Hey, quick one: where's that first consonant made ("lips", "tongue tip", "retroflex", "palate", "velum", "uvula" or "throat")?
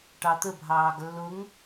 retroflex